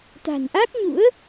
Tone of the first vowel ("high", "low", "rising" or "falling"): low